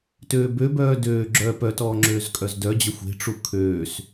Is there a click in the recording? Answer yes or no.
yes